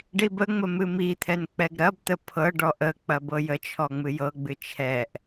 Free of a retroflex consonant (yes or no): no